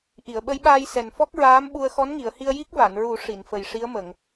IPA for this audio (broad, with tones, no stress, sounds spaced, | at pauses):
ʔ i˨˩˨ ə̯ ɓ ə˧˥ j ɓ aː˧ j s ɛ˨˩ n f ɔ˦˥ k̚ ɹ aː˧˥ m ɓ u˧ ə̯ x ɔ˧˥ n ŋ i˨˩˨ ə̯ h i˧ ə̯ j i˦˥ k̚ v a˨˩˨ n ɹ u˨˩˦ ʂ i˨˩˨ n f ə˨˩ j ʂ i˧˥ ə̯ m ə˨˩˨ ŋ